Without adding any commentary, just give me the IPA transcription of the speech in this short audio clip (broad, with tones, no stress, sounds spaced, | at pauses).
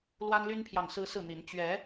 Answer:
l w a˦ n l y˦ n pʰ j ɑ˨ ŋ s ɹ̩˦ s ɹ̩˥˨ n̪ i˨˦ n t͡ɕ ɥ ɛ˨˦